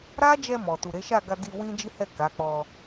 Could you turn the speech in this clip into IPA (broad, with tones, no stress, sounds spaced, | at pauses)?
ɾ a˦ d͡ʒ ɛ˧ m ɔ˨ t u˨ ɾ e˨˦ ʃ a˦˨ ɡ a˧ d i˧ w ĩ˦ d͡ʒ i˦ h ɛ˦˨ k a˨˦ k͡p ɔ˧